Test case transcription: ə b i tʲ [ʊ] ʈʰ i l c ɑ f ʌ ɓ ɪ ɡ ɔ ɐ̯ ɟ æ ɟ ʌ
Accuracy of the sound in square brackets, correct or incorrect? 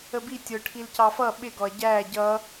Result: correct